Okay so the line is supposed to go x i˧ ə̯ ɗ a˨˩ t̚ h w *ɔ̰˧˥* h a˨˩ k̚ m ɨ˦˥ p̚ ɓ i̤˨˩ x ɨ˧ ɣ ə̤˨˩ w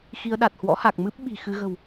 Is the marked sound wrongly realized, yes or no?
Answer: no